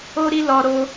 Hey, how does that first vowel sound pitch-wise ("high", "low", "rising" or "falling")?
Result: high